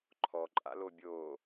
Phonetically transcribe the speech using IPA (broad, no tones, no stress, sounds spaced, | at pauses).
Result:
ǃʰ ɔ ǃʼ a̰ l o bʲ oː